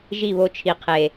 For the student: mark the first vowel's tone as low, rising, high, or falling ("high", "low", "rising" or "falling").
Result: falling